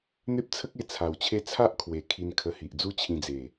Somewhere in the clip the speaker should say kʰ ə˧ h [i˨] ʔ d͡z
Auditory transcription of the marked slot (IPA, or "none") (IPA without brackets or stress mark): i˨